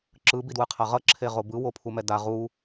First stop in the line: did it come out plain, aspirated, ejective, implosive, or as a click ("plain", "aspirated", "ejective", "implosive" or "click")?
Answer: click